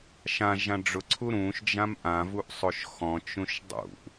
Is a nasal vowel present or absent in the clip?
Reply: present